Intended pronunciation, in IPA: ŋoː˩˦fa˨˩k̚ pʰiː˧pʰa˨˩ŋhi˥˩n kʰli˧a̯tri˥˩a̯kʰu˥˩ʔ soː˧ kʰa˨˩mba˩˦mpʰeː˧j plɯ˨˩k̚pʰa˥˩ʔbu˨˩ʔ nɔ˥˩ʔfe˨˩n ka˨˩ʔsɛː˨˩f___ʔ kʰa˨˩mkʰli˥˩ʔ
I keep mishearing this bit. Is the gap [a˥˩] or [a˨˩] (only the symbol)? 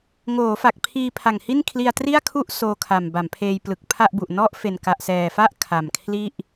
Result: a˥˩